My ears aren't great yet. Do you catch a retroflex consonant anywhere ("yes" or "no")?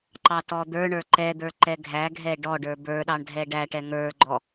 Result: yes